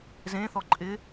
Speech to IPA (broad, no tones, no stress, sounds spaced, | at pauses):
z ẽ θ ɔ ǃʼ ɪ